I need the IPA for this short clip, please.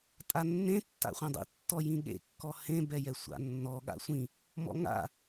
tʼ a nː ẽ tː a̰ χʷ ẽ dˤ ḭ tː ɔ j ĩ ɠ ḛ kː ɔ h ẽ b ɛ j ɛ sʷ a̰ nː ɔ ɠ a̰ sʷ ĩ | m ɔ̰ ŋ a̰

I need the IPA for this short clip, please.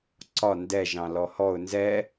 ǀ ɒ n d ɛ ʒ ɑ̃ l ɔ h ɔ ʊ̯ n z ɛ

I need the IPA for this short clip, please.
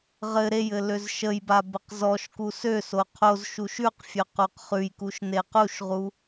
ʁ ɘ ɾ e j ɘ l ø z ʃ ə j b a b ə q z ɔ ʃ k u s ø s o qʰ o z ʃ u ʃ ʉ q fʲ ø q u q χ ʉ j k u ʃ n e q u ʃ ʁ u

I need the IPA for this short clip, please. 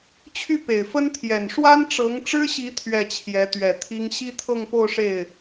t͡ɕʰ y˥˩ p e˨˩ ɪ̯ f ə˥ n t̪ʰ j ɛ˨˩ n ʂ w a˥ n ʈ͡ʂ ɤ˧˥ ŋ ʈ͡ʂ ɻ̩˥ ɕ i˧˥ t̪ʰ ɥ ɛ˥˩ t͡ɕʰ j ɛ˧˥ t̪ ɥ ɛ˨˩ t̪ʰ i˥ ŋ ɕ i˥ t̪ʰ ɤ˥˧ ŋ p o˥˧ ʊ̯ ʂ e˥˩ ɪ̯

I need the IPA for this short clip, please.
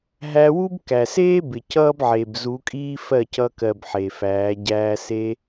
ɦ æ˧ w u˦ b k æ˨ s eː˦ b ɪ˨ c ʌː˦ b ʕ e˨ b z u˨˦ kʼ iː˦ f ɜ˦˨ c ʌ˧ k ɜ˨ b ħ e˨ f æː˨˦ ɟ æː˧ s e˦

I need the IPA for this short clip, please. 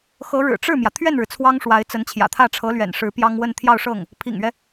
x ɤ˧˥ ɻ ɻ̩˨˩ ʈ͡ʂ ɻ̩˥˩ m j ä˩ t̪ʰ ɥ ɛ˥˩ n ɻ ɻ̩˩ t͡sʰ w ɑ˥ ŋ ʂ w a˧˥ ɪ̯ t͡s ə˧˥ n t͡ɕʰ j ä̰˨˩ t̪ʰ ä˥˩ ʈ͡ʂʰ ɤ˧˥ l ɥ ɛ̰˨˩ n ʂ ɻ̩˧˥ p j ɑ˥ ŋ w ə˥˧ n t̪ʰ j ɑ˥˧ ʊ̯ ʂ ɤ˥˩ ŋ | pʰ ḭ˨˩ ŋ ɥ ɛ˦

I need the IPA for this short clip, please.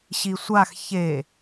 ɕ i sʷ a x ç e

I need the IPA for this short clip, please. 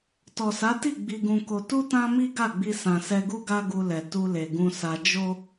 t ɔ˨ s a˨˦ t i˦˨ ɡ͡b i˧ ɡ ũ˧ k o˧ t u˦ t ã˦ m i˦ ɡ a˦˨ ɡ͡b i˧ s ã˨ s ɛ˧ ɡ u˦ ɡ a˦ ɡ u˧ l ɛ˨ t u˧ l e˨ ɡ ũ˧ s a˧ d͡ʒ o˦

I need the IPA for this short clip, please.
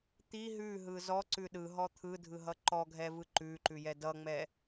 t̪ i ɦ ʉ ɦ ɯ z ɔ ǀ ʉ ɗ ɯ ɦ ɔ t̪ʰ ɯ dʱ ɯ ɦ ʌ ǃ ɔ ɡʱ ɛ v ɯ ǃ ʉ ǃ ʉ j ɛ d ʌ ŋ͡m ɛ

